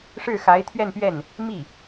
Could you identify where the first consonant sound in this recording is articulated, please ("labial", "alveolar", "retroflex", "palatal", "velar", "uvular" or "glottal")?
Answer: retroflex